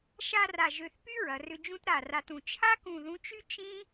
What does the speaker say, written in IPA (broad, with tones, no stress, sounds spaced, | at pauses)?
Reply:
ʃ a˥˧ r a˧˩ ʒ ø˧˩ θ p y˥ ɹ ɐ˩˧ r ʏ˧ d͡ʒ ũ˥ t ɾ a˧˩ r a˧ t ũ˩˧ t͡ʃʰ a˥ k ũ˧˩ ð ũ˧ t͡ʃ y˥ t͡ʃ ĩ˥